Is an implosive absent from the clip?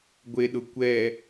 no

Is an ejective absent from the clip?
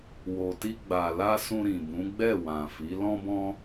yes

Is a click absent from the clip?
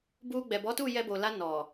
yes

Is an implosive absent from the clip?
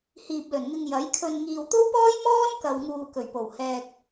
yes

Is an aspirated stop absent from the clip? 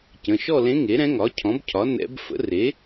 no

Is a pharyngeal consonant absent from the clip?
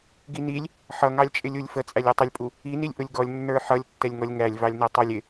no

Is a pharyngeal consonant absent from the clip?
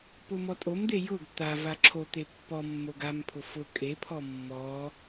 yes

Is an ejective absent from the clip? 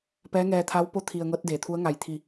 yes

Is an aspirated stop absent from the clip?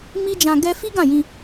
yes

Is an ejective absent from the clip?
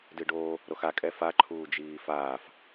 no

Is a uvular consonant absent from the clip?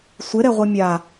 no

